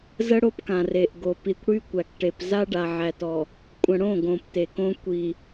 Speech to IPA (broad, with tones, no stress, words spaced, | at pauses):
zə˦ɽo˦pkã˨ re˨ʔɡo˨ pi˨kʷɽy˦kʷæ˨kʈe˨p za˦ɖa˨ ʕæ˨tɔ˨ | kʷʼə̃˨ɽõ˦˨ɡõ˨p te˨kõ˦ kʷi˨